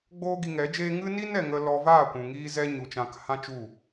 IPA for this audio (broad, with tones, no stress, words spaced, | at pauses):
ɡ͡boː˦ɡi˧ŋɛ˨˦d͡ʒeː˦ ŋɨ˦ni˦n ɛ˨ŋə˧ lɔ˧vaː˦˨ kʷũ˨ŋiː˦zɛ˦ ɲu˨t͡ʃã˧k hã˦ t͡ʃu˦˨